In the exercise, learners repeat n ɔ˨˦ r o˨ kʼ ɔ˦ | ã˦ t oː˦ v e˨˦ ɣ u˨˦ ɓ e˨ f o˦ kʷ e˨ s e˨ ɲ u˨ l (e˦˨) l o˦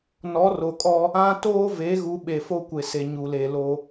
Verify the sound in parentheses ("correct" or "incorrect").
incorrect